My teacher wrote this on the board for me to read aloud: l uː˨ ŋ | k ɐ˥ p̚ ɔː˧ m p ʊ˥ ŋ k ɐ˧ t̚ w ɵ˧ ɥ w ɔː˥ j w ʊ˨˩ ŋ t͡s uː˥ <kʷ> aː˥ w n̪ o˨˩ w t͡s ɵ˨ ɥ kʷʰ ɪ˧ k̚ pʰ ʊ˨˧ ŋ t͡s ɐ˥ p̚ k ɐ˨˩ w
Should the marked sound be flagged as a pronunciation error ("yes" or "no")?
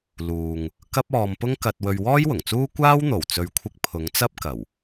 no